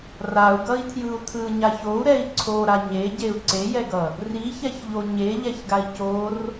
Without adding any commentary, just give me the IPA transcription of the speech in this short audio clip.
r a u̯ ɡ ʌ i̯ tʰ j ɯ u̯ tʰ ɯ ɲ a ç o u̯ ɾ ɛ i̯ ǀʰ o ɾ a ɲ e ɟ e u̯ ǀ e j ɛ ɡ ʌ | r i ç ɛ ç ʎ o ɲ e ʎ ɛ ç ɡ a i̯ c o r

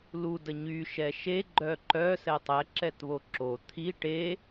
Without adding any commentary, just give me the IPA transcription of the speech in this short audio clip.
l u d ə ɲ y ʃ ɛ ʃ e ɡ͡ǃ œ ǃ œ s ɛ tˤ ɛ ǁ ɛ t β o ǁ o t̪ʰ i ʈ e

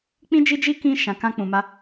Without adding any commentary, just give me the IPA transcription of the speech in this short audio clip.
k͡p ĩ˦ d͡ʒ i˦ d͡ʒ i˦ k ĩ˦ ʃ ã˧ k ã˦ k͡p ũ˧ m a˦

